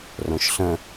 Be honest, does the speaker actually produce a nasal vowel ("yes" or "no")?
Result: yes